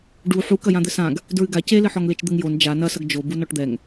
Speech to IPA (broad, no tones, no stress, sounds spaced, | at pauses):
ɖ u ħ u k ɐ j ã d̪ ɘ s ã ɡ | d ɹ ɨ ɡ a c e l ɘ ħ ɔ ŋ l e t͡ʃ d̪ ɘ ŋ j o n d͡ʒ a n ɐ s ɐ ɡ d͡ʒ o b u n ɔ ʈ d̪ ɛ ŋ